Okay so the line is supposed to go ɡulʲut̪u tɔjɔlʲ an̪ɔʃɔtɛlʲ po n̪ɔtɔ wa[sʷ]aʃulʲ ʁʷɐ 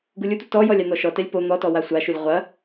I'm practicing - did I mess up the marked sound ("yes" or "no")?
no